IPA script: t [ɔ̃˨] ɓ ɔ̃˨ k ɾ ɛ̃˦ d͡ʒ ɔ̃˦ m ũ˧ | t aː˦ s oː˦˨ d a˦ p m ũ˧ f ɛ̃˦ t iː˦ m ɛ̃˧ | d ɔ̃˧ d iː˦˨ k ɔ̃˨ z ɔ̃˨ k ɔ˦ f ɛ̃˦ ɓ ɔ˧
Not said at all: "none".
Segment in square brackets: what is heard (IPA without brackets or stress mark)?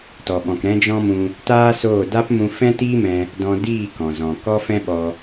ɔ˨